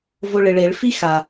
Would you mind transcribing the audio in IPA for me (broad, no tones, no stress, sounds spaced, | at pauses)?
v o ɭ ɪ ɭ e ɭ f i x a